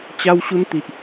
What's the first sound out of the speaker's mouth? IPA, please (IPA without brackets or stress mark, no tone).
t͡ɕ